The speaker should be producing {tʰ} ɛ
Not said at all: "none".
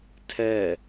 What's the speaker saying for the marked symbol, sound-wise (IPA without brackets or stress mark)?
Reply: tʰ